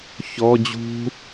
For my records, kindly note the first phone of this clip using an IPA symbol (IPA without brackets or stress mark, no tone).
ç